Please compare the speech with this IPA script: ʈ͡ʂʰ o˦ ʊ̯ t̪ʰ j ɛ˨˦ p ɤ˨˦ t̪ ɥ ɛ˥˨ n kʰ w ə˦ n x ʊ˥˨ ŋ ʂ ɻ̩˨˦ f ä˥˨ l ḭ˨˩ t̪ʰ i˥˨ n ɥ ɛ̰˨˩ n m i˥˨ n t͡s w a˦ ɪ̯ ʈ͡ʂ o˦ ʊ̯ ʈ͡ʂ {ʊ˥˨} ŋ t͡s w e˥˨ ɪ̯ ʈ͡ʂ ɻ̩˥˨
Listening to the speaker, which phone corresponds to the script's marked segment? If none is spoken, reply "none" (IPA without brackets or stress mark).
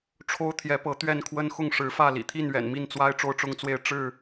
ʊ˦